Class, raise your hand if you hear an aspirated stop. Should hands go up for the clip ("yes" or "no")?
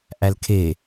yes